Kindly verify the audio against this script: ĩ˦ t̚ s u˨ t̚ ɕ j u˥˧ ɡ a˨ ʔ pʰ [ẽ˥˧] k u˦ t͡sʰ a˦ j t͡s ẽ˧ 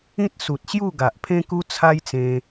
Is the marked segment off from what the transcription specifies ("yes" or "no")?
yes